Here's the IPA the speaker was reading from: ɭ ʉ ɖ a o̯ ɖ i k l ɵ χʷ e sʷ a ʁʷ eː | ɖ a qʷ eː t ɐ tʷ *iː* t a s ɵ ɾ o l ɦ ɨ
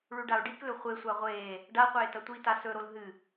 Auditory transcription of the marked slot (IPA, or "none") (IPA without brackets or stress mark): i